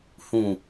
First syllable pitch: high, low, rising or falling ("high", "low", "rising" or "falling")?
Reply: low